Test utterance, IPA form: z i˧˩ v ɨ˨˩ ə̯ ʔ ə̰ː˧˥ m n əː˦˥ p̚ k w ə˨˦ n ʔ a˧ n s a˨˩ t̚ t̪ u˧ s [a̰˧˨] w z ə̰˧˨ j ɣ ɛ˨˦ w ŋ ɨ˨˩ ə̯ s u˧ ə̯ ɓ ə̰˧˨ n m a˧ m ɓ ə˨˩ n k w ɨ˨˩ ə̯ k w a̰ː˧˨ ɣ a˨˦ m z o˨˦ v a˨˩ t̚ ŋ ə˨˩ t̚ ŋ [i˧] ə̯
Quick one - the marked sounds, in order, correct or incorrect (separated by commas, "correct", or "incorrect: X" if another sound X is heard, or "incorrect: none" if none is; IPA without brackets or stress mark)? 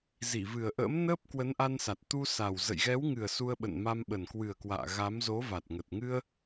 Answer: incorrect: a˨˩, incorrect: ɨ˧